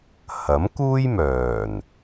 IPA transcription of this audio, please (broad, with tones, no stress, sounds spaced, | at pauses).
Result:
h ɐ˨˥ m k uː˥ j m œː˨˩ n